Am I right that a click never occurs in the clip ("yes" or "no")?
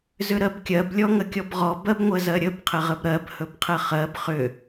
yes